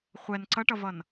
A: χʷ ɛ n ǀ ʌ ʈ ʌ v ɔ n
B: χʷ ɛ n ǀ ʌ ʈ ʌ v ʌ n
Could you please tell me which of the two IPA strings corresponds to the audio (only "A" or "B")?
B